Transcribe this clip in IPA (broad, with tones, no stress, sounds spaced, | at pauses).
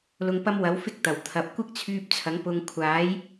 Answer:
l ʊ˧ ŋ p ɐ˧ m w ɐ˨˥ w f ɪ˧ k̚ t̪ ɐ˨˩ w t̪ʰ ɐ˨ p̚ kʷ ɪ˥ k̚ t͡sʰ yː˧ p̚ t͡sʰ ɐ˨˥ ŋ p ʊ˧ ŋ kʷʰ aː˨˥ j